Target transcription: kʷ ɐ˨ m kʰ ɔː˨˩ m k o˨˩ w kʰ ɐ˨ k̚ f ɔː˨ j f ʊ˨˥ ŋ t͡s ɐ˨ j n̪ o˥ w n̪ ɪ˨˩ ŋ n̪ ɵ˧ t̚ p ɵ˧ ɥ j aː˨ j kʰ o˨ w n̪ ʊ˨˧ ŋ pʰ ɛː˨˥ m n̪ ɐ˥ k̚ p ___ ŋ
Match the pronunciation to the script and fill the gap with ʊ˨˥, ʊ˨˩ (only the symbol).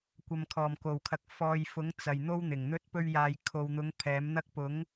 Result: ʊ˨˥